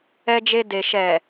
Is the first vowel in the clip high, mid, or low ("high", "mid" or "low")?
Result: mid